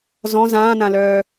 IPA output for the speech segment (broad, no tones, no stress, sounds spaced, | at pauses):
z ɔ̃ z ãː n ã l œː